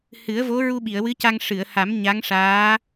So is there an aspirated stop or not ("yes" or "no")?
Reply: no